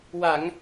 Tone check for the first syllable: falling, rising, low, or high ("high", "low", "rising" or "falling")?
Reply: low